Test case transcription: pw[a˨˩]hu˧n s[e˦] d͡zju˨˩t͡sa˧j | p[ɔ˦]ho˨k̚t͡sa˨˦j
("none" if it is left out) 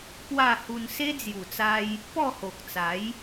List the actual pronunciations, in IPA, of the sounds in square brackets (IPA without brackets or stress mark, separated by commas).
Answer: a˥˧, e˦, ɔ˥˧